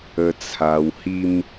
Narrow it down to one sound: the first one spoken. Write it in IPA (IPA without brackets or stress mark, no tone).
ə